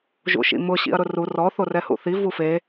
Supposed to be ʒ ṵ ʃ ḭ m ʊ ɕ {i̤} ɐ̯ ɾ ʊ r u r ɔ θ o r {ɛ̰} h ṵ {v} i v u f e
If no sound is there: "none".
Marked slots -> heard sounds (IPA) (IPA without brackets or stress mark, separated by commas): ḭ, ɛ, θ